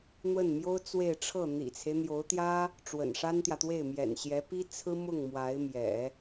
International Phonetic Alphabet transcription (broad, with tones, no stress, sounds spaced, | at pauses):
n̪ w ə˥˩ n m j o˥ ʊ̯ t͡s w e˥˧ ɪ̯ ʈ͡ʂʰ ɤ˥˩ n̪ ḭ˨˩ t͡sʰ e˦ ɪ̯ n̪ j o˧˥ ʊ̯ t̪ j ä˥ | ʈ͡ʂ w ə̰˨˩ n ʂ a˥ n t̪ j ä˨ t̪ w e˥˩ ɪ̯ m j ɛ̰˨˩ n ɕ j ɛ˧˥ p i˥ t͡sʰ ɹ̩˥ m ʊ˥˩ ŋ m w a˧˥ ɪ̯ m j ɛ̰˨˩˦